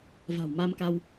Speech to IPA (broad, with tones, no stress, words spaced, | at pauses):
va̤˨˩wma˧mka˧w